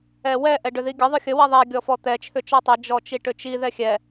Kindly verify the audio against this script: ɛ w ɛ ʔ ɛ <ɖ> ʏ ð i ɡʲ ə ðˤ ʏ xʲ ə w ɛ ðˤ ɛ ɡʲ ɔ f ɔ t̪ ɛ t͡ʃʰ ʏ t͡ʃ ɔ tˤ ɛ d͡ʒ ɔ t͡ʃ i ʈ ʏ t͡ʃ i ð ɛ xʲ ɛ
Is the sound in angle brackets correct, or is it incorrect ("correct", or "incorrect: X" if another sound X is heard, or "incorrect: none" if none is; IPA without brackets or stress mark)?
correct